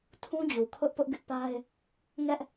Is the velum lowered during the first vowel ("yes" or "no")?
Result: yes